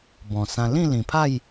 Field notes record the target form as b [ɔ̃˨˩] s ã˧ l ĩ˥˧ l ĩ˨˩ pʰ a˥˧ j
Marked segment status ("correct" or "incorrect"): correct